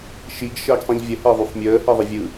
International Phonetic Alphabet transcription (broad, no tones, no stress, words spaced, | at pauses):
ʃiɡ ʃəːɡsˤĩʎvʲə heðˤyfmʲəː heðˤəvʲɯ